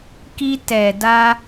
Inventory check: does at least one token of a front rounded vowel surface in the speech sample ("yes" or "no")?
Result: no